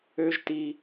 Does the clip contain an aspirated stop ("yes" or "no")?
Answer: no